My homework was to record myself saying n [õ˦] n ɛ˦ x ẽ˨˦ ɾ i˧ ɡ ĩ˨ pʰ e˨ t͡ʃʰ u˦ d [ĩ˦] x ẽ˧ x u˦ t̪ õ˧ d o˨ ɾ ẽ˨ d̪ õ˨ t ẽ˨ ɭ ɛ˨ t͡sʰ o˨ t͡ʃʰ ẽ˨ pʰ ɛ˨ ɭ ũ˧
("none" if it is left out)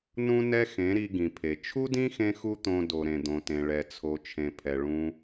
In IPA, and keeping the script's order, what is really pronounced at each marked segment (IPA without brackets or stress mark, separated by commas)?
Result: ũ˦, ĩ˦